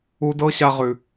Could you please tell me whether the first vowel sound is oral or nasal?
oral